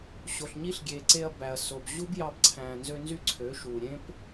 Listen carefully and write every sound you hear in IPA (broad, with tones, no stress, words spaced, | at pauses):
ɕo˨ɬɲi˦ɬɡʲe˨ǀe˧ɐ̯ bæ˨ɐ̯so˨b ʑu˦bjɑ˧bǀʰæ̃ː˨ nzø˧ nzy˦ǀʰø˨˦ʃuː˨ ɾʲẽ˦p